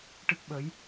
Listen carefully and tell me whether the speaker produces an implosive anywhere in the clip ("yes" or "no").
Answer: yes